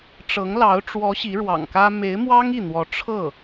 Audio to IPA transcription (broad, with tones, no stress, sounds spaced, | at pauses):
ʈ͡ʂ ɤ˧˥ ŋ l ɑ˧˥ ʊ̯ ʈ͡ʂ w ɔ˧˥ ɕ i˧˥ ɻ w ɑ̰˨˩ ŋ k ä˥ m e˧˥ ɪ̯ m w ɑ˥ ŋ i˥˩ n̪ w ɔ˧˥ ʈ͡ʂʰ ɤ˥˩